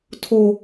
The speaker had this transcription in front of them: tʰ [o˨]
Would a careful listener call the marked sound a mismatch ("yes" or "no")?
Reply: yes